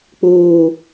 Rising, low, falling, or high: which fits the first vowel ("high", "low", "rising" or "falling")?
low